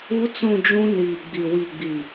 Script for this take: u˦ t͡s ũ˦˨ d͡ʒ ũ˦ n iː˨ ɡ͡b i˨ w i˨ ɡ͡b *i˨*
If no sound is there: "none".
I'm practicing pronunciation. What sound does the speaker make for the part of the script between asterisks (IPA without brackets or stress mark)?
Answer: i˨